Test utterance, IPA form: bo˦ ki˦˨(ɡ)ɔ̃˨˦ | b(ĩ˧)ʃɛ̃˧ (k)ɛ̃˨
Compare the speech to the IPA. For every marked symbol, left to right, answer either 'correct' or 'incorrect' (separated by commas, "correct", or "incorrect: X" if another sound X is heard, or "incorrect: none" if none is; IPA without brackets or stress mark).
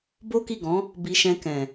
correct, incorrect: i˧, correct